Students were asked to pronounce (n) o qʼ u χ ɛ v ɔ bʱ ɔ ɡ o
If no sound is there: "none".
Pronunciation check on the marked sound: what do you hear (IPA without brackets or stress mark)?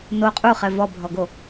n